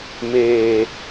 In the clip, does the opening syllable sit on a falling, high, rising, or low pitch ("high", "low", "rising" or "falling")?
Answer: low